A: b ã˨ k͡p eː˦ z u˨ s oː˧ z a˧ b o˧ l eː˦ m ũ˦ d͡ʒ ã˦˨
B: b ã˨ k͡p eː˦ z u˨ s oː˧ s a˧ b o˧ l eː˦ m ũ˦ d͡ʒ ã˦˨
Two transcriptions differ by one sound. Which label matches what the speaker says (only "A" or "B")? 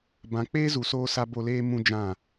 B